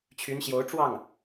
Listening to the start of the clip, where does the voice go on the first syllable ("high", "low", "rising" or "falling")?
rising